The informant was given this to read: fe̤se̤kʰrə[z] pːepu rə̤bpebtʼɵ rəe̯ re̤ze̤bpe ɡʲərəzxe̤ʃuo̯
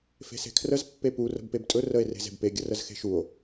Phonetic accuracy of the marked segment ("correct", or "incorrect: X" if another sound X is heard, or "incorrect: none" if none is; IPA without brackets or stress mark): correct